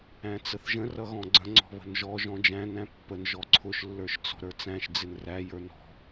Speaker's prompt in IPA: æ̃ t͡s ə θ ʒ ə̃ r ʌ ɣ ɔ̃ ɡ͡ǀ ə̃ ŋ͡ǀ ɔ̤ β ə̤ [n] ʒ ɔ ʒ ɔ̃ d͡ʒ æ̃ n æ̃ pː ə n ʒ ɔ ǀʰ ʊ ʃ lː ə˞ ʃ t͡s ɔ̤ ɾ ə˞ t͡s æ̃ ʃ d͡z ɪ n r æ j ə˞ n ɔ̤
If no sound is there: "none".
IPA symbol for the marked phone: n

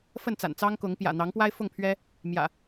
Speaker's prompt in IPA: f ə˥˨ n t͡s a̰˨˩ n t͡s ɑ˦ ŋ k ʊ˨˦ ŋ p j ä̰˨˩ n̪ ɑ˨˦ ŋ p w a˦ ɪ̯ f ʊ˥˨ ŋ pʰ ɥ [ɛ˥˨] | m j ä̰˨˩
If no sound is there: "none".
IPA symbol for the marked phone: ɛ˦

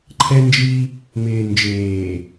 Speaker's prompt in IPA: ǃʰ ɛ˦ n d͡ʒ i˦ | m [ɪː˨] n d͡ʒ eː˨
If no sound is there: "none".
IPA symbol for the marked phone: ɪː˨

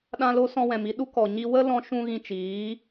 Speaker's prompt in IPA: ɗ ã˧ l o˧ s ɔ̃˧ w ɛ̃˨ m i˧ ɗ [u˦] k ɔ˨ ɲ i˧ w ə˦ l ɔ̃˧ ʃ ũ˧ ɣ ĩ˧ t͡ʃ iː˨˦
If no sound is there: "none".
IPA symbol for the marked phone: u˦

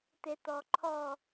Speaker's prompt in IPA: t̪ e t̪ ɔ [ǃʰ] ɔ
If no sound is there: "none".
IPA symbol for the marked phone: ǃʰ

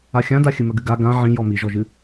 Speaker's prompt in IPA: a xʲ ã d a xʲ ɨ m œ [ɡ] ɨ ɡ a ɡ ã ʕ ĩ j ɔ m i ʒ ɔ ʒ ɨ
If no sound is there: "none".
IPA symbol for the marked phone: ɡ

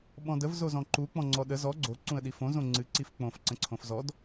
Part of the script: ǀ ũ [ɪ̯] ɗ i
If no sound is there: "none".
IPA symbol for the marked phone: ə̯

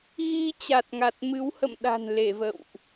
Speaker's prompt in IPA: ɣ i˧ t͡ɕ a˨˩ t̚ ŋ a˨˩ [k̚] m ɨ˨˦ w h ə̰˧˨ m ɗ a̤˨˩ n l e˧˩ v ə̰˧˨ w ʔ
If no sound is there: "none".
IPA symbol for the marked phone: t̚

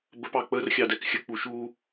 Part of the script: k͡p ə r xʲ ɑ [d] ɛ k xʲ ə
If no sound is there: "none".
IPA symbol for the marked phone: d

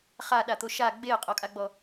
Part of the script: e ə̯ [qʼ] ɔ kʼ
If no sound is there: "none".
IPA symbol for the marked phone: qʼ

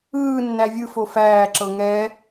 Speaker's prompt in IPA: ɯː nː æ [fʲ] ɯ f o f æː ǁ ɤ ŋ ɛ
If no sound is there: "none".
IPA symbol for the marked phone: vʲ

